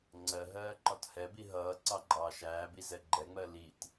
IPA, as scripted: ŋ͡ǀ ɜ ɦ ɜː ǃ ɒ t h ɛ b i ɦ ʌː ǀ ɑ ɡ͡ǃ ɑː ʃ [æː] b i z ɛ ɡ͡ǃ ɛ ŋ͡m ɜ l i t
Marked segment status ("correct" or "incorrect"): correct